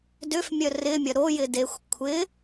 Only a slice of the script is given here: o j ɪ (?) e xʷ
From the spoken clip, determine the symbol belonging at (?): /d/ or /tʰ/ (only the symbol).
d